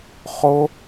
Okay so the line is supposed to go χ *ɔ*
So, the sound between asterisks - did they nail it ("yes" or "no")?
no